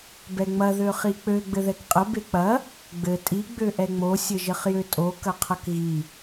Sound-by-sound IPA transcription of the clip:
b ɛ ŋ͡m ɐ ð ø χ i k͡p ø ɡ͡b ɘ ð ɛ k qʼ ə b e k͡p ɐ | ɡ͡b ɘ tʼ i ɡ͡b ø ʔ ɛ ŋ͡m o sʲ ɘ ʒ ɘ χ j ø tʼ o k ɐ qʰ ɐ k ɣ i

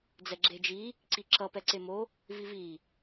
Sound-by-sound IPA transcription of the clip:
d͡z ɛ ɡ͡ǁ e d͡ʒ i | ǀ i ǁ ʌ p ɛ ǀ e m o | v i v i

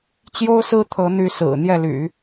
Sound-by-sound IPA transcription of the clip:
t͡ɕ j o˥ ʊ̯ s ɹ̩˥ t̪ʰ ɤ˧˥ n̪ y˧˥ s ɹ̩˨˩ n̪ j ɛ˥˩ l y̰˨˩˦

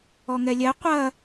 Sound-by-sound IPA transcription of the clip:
ɔ ŋ ɛ lʲ ɛ qʷ ɐ

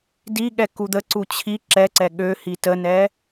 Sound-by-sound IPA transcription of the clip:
d i ɠ ɛ k u d̪ ə ǀ u t͡ɕʰ i ǁ ɛ ǀ ɛ ɠ ø h i t ə n ɛ

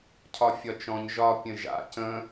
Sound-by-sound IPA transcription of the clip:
cʰ ɒ fʲ ɒ t͡ʃ ɔ̃ ɲ ʒ ɒ pʲ ə̃ ʒ a̰ c ə̃

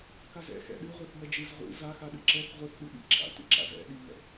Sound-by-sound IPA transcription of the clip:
k a z ɛ̰ x ɛ̰ ɗ ɨ ʁʷ ɛ θ m ɛ d͡ʒ ɨ z ʁʷ ḭ z a x a ɗ ɨ ǁ ɛ θ ʁʷ ɨ θ ɗ ɨ ɓ ḭ ǁʰ a̰ tʷ ḭ ǁ a̰ z ɛ̰ ɗ i ŋ ɛ̰

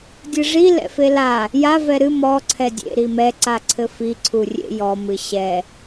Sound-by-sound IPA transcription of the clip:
dʲ ɨ ʐ i l ɛ̰ f e l a | j a v ɛ ɾ ɨ m ɔ ǀʰ ɛ dʲ ḛ ɾ i m ɛ ǀ a ǀʰ ɘ f i ǀʰ u rʲ ḛ j ɔ m ɨ ɕ ɛ

